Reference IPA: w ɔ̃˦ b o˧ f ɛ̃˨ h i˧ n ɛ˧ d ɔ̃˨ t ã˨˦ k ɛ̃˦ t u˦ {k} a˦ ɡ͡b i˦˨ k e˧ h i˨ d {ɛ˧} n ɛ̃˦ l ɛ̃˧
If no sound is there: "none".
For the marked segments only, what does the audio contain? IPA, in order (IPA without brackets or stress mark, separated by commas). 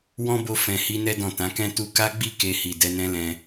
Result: k, ɛ˧